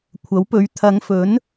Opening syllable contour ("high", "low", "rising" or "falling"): rising